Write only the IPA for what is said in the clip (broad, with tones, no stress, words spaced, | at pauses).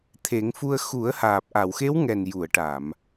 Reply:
t̪ʰe˨˩˦ŋfu˧ə̯ xu˨˩˦ə̯haː˨˩p̚ ʔa˨˩˨wxe˧˥w ŋɛ˨˩n ju˨˩˨ə̯ʈa˨˩˨m